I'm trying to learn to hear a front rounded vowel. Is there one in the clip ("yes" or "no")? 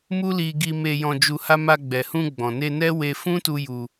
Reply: no